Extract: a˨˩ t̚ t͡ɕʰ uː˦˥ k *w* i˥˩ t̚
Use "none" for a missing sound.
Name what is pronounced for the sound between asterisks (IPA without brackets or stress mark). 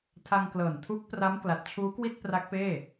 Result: w